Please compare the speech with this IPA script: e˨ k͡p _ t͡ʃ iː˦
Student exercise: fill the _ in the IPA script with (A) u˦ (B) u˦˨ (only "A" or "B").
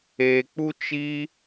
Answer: A